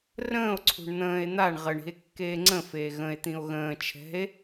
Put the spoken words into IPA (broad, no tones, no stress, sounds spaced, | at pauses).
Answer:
r ə̃ː o̯ ǀʰ ṳ ɳ n̪ ə̃ː e̯ n̪ a ɳ ʁ ə ɳ i̤ e̯ kː eː ŋ͡ǀ ə̃ f eː ɣ ə̃ e̯ t̪ ĩ o̯ ɣ ə̃ː t͡ʃʰ ɛ̤ e̯